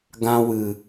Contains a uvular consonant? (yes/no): no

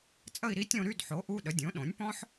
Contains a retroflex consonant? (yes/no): no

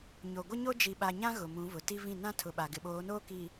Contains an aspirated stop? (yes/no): yes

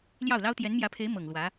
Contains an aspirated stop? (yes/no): yes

